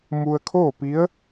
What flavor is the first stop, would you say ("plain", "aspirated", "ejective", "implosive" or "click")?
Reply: aspirated